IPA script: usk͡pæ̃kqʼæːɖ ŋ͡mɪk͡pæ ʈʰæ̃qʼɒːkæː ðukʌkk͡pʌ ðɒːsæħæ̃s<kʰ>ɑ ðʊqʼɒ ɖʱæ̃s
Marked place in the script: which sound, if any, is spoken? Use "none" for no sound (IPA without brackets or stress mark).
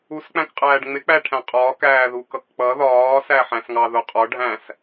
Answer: ŋ